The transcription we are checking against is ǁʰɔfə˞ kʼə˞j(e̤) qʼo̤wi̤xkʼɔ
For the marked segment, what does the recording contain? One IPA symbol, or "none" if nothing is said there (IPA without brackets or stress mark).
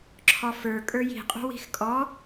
i̤